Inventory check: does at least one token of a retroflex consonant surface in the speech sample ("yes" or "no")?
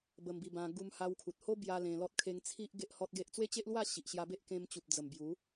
no